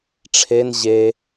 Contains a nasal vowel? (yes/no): no